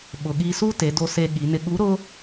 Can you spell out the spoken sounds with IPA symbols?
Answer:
ɓ ʊ˩ ɠ i˧ s u˥ t e˩˧ d o˧ s e˧ ɠ i˩˧ n ɪ˧ ɠ u˧˥ ɾ ʊ˥

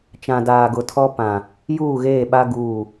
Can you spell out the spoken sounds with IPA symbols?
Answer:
t͡ʃ ã˨ d aː˨ ɡ ʊ˨ tʰ ɔ˦ p ã˨ | j uː˦˨ ɣ eː˦˨ ɓ a˦ ɡ uː˦˨

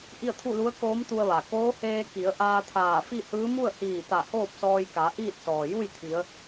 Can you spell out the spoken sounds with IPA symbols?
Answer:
ʔ i˥˨ ə̯ t̪ʰ u˥˨ l u˧˥ ə̯ k oː˧˥ m t̪ u˧ ə̯ ʋ a˩ k oː˧˥ h eː˧ k i˩˧ ə̯ ʔ aː˧ t̪ʰ aː˧˩ f i˥˨ h ɯː˧˥ m u˥˨ ə̯ h iː˧˩ t̪ a˧˩ h oː˥˨ p̚ s ɔː˧ j k a˩˧ ʔ iː˥˨ t̚ s ɔː˩ j u˥˨ j t̪ʰ i˩˧ ə̯

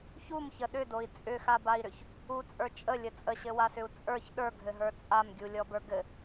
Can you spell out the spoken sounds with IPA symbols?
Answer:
ç u m ç ə ɗ ʏ d o i̯ t͡sʼ ʏ x a b a i̯ ɾ ʏ ç | u t͡sʼ ə˞ t͡ʃʼ ə lʲ ə t͡sʼ ə ɕ ɘ w a s ʏ u̯ t͡sʼ ə˞ ç ɗ ə˞ ɡʱ ɘ ɦ ə˞ t͡sʼ a m ɡʲ u lʲ ɔ b ə˞ ɡ ɘ

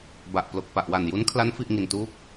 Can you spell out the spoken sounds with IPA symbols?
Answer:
b a˨˩ ʔ p l o˨˩ k̚ p a˨˩ ʔ w a˨˩ n j u˦˥ n kʰ l a˦˥ n f i˥˩ ʔ ŋ i˧ n t uː˥˩ k̚

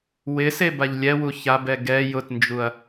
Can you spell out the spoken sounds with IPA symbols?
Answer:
w ɪ s e b a ʎ lʲ ɛ w u ç a b ɛ ɡ ɛ j ʊ t n d͡ʒ u ɐ̯

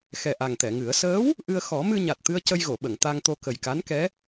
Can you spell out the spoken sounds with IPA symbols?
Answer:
x ɛ˨˩ ʔ a˨˩ ŋ t̪ ɛ˨˩˨ ŋ ɨ˨˩˦ ə̯ s əː˧˥ w | ʔ ɨ˧ ə̯ x ɔ˨˩˦ m ɨ˧ ɲ a˨˩ t̚ t̪ ɨ˧ ə̯ c ə˧ j ɣ o˨˩˨ ɓ ə˨˩˨ ŋ t̪ a˧ ŋ t̪ o˧ k ə˨˩ j k a˧˥ n k ɛ˧˥

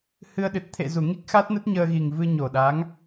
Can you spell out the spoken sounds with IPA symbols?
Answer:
h ɨ˧ ə̯ ɗ ɨ˨˩ t̚ t̪ʰ ḛ˧˨ z u˧˩ ŋ i˦˥ k̚ x a˦˥ t̚ n ə˦˥ t̚ ɲ əː˧ ɣ i˨˩ ŋ v ɨ˧ ɲ o˨˩ ɗ a˨˦ ŋ

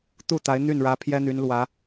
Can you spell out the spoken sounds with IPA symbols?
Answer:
t̪ u˥˩ t̪ a˧˥ ɪ̯ n̪ y˥˩ n ɻ ä˧˥ pʰ j ɛ˥ n̪ y˧˥ n l w ä˧˥

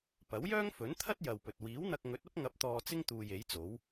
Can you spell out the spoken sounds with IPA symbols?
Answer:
p ɐ˨˥ w j œː˥ ŋ f ɵ˨˥ n t̪ʰ ɐ˥ t̚ j ɐ˨ w p ɵ˨ t̚ w iː˨˥ w n̪ ɐ˧ k̚ ŋ ɵ˨˥ t̚ ɐ˥ p̚ ŋ ɐ˨˥ p̚ t̪ ɔː˧ t͡s ɪ˥ ŋ t̪ uː˨ j e˨˥ j t͡s o˨˥ w

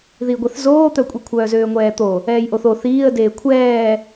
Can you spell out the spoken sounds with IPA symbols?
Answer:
ð i ɡʷ ɛ θ z oː t̪ œ kʷʼ i kʷʰ œː z øː ŋʷ ɛː t̪ o | ɛː j ʔ o θ o θ iː ə̯ d eː kʷʰ ɛː

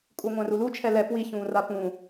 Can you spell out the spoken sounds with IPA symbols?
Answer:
kʼ u ŋʷ æ̃ r u l u t͡ʃʰ ɛ l ɛ p w i ç ũː r a p ũ

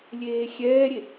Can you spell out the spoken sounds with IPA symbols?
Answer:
lʲ eː xʲ ɛː ɾʲ e

